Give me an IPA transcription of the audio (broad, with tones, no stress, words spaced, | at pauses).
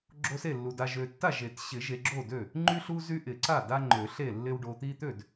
ɡ͡ǁo˦se˥˩lːu˨ da˨ʒø˨tːa˥˩ʒe˨˩˦t ɕɪ˨˩˦ ʒe˨ɡ͡ǁo˥˩dø˥˩ | ŋ͡ǃy˦ɬu˦ zy˦ʔɪ˨˩˦ ǀa˥˩da˦ ŋ͡ǃø˨˩˦ɬe˥˩lːɪ˦w ɖo˨t̪i˦t̪ø˥˩d